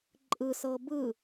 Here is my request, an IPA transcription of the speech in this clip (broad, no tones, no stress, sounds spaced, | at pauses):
ǃʼ ɯ s ɤ b ɯ